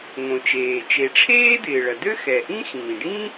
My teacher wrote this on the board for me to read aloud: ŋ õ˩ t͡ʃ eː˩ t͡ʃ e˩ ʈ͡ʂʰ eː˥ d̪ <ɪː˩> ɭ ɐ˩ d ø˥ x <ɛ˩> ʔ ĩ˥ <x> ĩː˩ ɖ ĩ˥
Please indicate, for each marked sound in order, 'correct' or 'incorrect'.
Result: correct, correct, correct

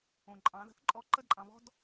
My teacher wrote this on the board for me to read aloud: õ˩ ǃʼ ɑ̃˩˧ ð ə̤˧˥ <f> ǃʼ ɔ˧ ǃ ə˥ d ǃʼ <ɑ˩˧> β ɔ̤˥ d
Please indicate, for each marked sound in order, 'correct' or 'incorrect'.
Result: incorrect: θ, incorrect: ɑ̃˩˧

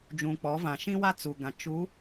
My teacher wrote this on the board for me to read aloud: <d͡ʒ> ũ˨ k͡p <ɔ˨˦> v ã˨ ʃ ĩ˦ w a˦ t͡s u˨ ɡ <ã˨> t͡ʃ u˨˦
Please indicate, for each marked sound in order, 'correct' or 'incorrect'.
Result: correct, correct, correct

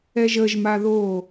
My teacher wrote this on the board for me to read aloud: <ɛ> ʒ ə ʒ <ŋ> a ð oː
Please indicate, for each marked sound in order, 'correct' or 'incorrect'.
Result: correct, incorrect: m

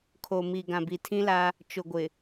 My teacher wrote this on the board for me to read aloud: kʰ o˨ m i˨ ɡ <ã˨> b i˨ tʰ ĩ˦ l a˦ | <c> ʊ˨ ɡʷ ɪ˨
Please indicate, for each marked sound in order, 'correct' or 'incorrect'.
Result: correct, incorrect: t͡ʃ

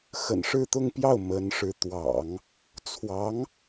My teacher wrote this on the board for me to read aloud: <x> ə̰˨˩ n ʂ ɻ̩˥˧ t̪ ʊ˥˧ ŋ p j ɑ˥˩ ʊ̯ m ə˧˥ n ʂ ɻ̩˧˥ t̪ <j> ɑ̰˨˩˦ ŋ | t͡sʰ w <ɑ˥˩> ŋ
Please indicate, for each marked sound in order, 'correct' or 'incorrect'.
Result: correct, incorrect: w, incorrect: ɑ˧˥

